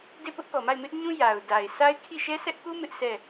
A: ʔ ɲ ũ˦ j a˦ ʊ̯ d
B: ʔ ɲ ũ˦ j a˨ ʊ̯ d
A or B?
B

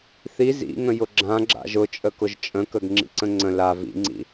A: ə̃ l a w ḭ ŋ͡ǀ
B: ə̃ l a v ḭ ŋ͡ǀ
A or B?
B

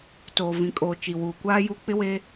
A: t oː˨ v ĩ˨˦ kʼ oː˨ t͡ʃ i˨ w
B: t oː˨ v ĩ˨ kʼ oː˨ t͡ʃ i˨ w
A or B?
B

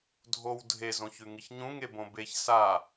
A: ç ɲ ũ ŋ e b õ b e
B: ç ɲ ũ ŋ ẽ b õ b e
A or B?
A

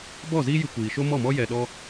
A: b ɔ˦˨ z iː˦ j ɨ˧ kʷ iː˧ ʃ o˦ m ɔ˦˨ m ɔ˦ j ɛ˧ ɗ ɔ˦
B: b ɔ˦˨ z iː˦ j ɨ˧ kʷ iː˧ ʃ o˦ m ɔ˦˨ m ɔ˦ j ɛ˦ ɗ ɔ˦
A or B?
A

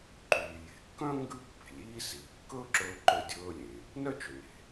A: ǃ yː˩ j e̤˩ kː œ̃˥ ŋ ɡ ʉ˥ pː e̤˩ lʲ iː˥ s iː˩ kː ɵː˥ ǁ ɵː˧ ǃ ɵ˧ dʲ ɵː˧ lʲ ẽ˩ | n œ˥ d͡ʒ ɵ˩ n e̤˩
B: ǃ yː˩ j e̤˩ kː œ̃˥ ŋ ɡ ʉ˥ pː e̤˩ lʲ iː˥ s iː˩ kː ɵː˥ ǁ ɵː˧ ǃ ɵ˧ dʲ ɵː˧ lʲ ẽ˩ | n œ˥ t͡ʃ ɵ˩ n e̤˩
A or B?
B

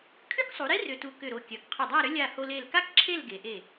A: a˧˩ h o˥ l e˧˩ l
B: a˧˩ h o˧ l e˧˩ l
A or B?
B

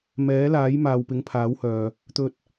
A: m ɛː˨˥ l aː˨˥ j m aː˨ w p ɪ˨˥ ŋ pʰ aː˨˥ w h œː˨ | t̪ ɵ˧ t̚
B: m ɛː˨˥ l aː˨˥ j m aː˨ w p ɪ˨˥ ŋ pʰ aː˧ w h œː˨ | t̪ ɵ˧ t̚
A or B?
A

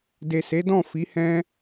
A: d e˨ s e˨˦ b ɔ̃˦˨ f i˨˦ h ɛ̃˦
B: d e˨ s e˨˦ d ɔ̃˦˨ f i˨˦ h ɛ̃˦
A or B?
B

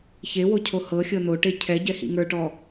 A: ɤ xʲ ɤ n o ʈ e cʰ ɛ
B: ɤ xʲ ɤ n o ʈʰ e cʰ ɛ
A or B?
A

